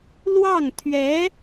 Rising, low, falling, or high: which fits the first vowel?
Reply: falling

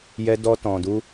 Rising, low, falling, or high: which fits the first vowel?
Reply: high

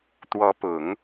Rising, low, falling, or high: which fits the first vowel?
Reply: rising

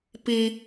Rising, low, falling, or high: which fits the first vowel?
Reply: high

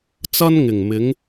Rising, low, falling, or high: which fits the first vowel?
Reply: high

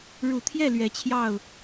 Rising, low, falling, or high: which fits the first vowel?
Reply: low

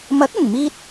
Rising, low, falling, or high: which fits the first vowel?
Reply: rising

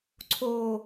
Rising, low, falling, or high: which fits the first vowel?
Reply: low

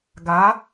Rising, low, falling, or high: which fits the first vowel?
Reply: rising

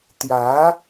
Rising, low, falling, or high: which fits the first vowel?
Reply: rising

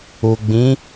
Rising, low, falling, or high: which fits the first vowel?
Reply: low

